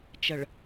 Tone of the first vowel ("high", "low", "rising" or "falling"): low